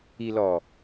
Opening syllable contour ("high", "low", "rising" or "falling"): low